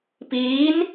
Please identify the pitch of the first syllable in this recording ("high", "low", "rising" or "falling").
rising